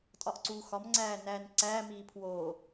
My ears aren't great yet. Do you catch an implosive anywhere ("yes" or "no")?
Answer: no